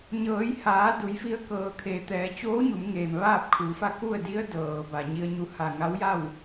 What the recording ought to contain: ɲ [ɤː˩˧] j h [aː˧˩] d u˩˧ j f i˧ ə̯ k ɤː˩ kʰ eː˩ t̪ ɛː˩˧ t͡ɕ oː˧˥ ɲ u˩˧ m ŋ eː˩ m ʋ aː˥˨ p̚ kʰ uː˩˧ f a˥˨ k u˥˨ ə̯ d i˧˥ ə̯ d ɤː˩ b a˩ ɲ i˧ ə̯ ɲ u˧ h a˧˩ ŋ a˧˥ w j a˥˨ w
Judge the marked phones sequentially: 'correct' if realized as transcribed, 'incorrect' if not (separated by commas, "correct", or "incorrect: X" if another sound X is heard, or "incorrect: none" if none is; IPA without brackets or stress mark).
correct, incorrect: aː˩˧